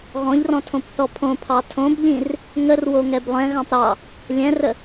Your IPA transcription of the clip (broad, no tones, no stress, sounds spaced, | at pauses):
ɣ ɔ̃ ʎ r ɔ̃ tʰ õ p θ ɔ pʰ õ pʰ ɑ tʰ õ b ʎ ĩ r | ŋ ə r w o ŋ ɛ b lˠ ɛ̃ ɣ ɑ̃ p ɾ ɑ | lʲ ɛ̃ r ə